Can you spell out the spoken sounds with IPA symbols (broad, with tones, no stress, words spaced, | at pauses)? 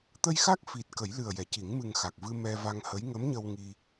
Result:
t̪ə˧jxa˦˥k̚ fi˨˩t̚ kə˨˩˦jlɨ˨˩ə̯jɛ˨˩˨ci˨˩˦ŋ mɨ˨˩ŋxa˨˩k̚vɨ˧ mɛ˧va˧ŋhə˧˥j ŋə˧˥mɲə˧w ŋi˧